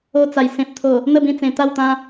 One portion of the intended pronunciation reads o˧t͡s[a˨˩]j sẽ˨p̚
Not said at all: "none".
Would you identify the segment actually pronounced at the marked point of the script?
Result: a˨˩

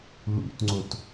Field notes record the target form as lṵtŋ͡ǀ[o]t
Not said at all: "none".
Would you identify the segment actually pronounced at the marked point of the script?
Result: o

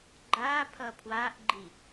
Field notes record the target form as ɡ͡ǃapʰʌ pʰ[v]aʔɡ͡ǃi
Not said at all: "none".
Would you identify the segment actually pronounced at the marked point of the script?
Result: w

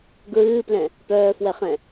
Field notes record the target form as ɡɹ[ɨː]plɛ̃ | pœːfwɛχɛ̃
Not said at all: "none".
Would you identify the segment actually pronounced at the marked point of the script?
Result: ɨː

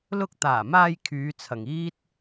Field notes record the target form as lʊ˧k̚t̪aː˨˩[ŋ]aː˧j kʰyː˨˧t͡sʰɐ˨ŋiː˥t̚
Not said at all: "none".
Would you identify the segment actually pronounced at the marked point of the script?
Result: m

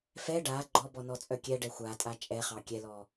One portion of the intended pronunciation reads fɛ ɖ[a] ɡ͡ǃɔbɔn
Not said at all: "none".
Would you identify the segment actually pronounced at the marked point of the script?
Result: a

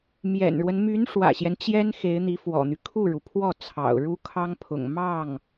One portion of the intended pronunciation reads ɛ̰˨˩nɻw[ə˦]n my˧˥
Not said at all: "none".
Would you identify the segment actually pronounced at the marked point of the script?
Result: ə˦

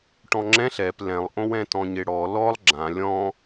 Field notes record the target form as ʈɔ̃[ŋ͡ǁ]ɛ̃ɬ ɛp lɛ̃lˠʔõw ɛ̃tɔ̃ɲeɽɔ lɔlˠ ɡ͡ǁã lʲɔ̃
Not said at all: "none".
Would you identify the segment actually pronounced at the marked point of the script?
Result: ŋ͡ǁ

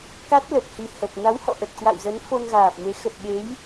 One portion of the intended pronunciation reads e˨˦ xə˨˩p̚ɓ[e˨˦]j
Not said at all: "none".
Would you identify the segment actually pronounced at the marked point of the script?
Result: e˨˦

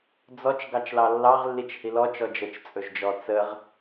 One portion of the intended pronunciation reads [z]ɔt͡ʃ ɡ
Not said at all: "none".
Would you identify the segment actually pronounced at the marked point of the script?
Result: d͡z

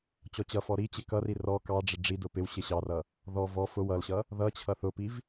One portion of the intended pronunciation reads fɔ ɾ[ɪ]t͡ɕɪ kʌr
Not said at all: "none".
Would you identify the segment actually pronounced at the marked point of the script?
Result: i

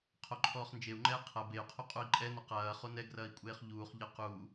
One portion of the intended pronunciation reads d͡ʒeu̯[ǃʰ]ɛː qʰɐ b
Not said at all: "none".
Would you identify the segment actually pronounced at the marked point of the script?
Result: ŋ͡ǃ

